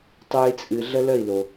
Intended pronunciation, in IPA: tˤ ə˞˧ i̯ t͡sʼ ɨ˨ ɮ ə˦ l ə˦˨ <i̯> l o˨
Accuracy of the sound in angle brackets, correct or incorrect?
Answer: correct